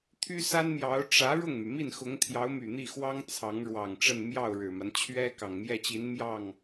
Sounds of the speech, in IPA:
t̪ʰy˥sa˥nmjɑ˧˥ʊ̯ ʈ͡ʂä˧˥ ɻʊ˥˩ŋmy˩ mi˥˩nxʊ˧˥ŋt̪ʰjɑ˧˥ʊ̯my˨˩ n̪i˥˩xwɑ˥ŋ t͡sʰɑ˧˥ŋ ɻwɑ˨˩ŋʈ͡ʂə˥˧n mjɑ˥˩ʊ̯ɻɻ̩˨˩ma˦n t͡ɕʰɥɛ˥ kɑ˨˩ŋmjɛ˥˩t͡ɕi˧˥n mjɑ˥˩ŋ

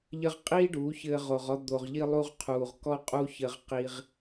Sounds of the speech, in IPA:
ʎɘ˧ʁqʼiː˦ ɖuː˨˦çɘː˧ʁ o˨ʁɔ˧ d̪o˨ʁ ʎi˧lˠu˧ʁqʰuː˨ʁ kɔ˦qʼu˦ çɘ˧ʁqi˧ʁ

